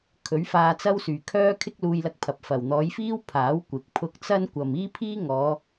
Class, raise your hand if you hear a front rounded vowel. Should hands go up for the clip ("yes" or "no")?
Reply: yes